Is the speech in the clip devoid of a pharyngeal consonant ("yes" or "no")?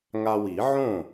no